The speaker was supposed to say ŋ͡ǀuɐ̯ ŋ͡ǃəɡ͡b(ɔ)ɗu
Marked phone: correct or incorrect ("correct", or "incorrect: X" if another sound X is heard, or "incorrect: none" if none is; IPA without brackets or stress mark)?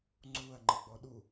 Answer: correct